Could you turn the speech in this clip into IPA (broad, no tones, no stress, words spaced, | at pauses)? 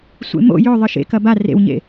sʷḛmo̰ jɵ ðˤɨʃḛkɐ ba rḛwɲḛ